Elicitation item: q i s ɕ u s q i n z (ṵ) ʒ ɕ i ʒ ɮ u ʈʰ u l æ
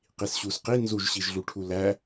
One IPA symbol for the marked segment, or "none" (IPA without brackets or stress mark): u